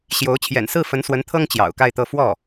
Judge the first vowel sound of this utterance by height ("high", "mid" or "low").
mid